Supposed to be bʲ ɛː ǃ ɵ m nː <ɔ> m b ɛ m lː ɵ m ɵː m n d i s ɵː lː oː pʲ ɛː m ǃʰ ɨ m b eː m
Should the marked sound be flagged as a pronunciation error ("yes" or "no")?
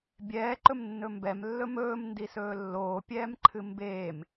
yes